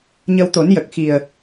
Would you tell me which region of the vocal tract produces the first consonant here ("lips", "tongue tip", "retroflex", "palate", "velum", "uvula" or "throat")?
palate